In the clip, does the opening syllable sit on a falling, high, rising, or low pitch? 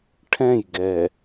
falling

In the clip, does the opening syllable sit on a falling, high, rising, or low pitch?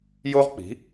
high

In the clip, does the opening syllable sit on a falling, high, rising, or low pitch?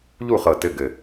falling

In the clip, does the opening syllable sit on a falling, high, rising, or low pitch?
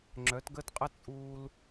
rising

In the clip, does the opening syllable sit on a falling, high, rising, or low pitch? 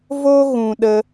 high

